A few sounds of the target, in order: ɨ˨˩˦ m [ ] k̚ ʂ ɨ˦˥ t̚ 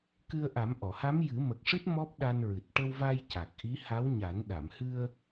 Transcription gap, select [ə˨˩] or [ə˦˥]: ə˨˩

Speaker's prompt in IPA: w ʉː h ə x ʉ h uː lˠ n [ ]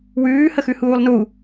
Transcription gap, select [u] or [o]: u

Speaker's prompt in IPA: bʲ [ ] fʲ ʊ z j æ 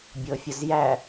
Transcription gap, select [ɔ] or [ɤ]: ɤ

